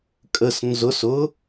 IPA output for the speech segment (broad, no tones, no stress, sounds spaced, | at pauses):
kʼ ə s n z ʊ s ʊ